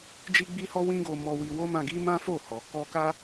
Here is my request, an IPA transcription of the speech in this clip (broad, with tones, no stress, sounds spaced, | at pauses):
d͡ʒ i˦ ɡ͡b i˦ h ɔ˦ w ĩ˦ ɡ o˧ m ɔ˧ w i˧ w o˦ m ã˧ ɡ i˦ m ã˦ f o˦˨ h ɔ˨ k ɔ˧ k a˦